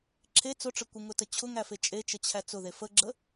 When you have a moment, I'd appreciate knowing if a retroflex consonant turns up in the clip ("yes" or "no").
yes